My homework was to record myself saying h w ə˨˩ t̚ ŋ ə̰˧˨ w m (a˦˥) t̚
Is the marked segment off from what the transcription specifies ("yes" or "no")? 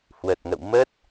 yes